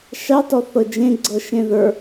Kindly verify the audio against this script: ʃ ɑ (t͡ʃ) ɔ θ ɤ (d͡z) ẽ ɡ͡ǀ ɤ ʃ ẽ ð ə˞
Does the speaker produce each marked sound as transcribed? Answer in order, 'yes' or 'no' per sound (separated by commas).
no, no